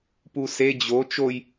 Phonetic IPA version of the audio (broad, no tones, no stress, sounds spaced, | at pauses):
p u s e d͡ʑ o t͡ʃ o j